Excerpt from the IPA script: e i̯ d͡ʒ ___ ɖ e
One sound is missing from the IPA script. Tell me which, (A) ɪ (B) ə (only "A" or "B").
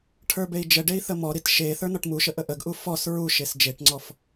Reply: B